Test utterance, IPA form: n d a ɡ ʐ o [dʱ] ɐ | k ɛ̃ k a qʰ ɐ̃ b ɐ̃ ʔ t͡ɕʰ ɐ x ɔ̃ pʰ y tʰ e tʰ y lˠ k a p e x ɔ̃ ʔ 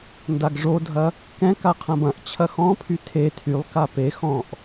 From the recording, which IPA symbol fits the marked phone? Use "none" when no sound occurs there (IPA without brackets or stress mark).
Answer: dʱ